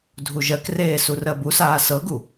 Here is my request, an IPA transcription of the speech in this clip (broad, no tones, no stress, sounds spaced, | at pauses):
dʱ u ʒ ɜ k r eː s u r ɜ b u s aː s ɤ ɡ u